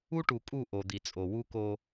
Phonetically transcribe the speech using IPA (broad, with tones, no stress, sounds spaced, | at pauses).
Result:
u˦ ʈ u˨ kʼ u˦˨ ʔ o˨ d̪ i˨ t͡sʼ o˨ w u˦ k o˦